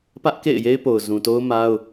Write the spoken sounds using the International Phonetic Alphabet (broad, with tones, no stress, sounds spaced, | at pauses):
p ä˦ ʔ k ḛ˦˨ ɪ̯ j e˦ ɪ̯ p o˨ ʊ̯ z ũ˨ t o˦ ʊ̯ m a˦ ʊ̯